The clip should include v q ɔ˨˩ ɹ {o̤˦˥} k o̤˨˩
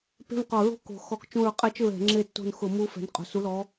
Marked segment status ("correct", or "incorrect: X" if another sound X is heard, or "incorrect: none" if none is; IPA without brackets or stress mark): correct